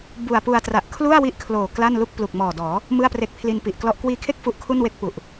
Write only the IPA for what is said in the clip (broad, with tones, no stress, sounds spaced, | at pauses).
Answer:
b u˨˩ a̯ p u˧ a̯ t r a˨˩ ʔ kʰ l u˥˩ a̯ w i˦˥ ʔ kʰ l oː˨˩ k l a˥˩ n l u˥˩ k̚ p l u˨˩ k̚ m ɔː˨˩ d ɔː˩˦ | m ɯ˥˩ a̯ p r e˦˥ k̚ pʰ l i˧ n p i˨˩ ʔ k l ɔ˥˩ ʔ k w iː˧ kʰ e˥˩ k̚ f u˦˥ ʔ kʰ u˥˩ n w e˥˩ k̚ p u˨˩ ʔ